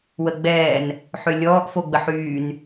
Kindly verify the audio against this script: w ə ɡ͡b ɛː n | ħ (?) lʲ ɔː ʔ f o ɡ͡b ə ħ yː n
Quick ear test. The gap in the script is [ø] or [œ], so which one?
ø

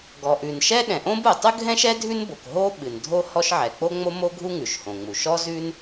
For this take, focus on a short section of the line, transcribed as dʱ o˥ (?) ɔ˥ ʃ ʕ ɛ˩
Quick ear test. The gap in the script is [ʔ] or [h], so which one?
h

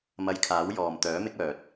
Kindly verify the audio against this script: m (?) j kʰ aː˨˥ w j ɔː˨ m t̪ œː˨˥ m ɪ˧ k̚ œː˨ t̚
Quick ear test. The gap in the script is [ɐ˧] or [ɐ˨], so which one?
ɐ˧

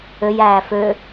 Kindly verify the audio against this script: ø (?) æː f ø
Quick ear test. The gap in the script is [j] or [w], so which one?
j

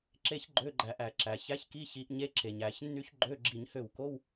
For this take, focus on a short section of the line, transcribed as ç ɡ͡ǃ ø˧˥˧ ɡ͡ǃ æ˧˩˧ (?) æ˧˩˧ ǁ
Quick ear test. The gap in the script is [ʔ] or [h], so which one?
ʔ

